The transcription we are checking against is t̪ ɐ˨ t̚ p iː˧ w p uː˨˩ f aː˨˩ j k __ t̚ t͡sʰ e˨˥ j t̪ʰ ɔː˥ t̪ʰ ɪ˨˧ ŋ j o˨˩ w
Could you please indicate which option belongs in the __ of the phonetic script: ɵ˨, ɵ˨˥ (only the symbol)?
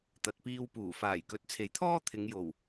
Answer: ɵ˨˥